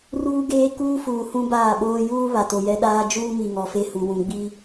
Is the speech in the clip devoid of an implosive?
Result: no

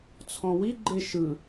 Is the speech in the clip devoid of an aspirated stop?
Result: no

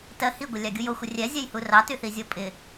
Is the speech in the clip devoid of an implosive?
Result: yes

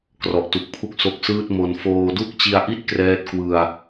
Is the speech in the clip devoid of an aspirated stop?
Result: no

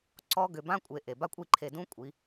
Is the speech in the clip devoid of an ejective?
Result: no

